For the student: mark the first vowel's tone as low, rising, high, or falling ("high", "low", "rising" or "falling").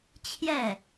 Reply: falling